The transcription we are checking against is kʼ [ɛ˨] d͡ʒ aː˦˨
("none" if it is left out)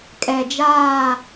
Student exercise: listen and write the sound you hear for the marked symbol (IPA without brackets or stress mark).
ɛ˨